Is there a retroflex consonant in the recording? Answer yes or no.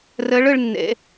yes